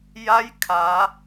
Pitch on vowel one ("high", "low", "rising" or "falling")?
rising